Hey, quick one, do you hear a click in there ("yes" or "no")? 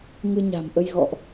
no